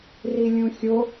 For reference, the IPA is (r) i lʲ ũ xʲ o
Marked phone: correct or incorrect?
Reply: correct